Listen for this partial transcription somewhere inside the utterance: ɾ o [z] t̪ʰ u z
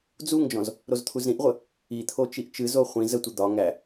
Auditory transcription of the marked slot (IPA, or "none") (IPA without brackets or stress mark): z